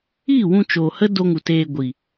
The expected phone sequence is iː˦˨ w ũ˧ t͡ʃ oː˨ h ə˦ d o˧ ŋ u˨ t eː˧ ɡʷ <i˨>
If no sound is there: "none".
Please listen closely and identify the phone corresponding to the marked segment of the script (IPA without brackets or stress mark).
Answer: i˨